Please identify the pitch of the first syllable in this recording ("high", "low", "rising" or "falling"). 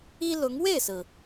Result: high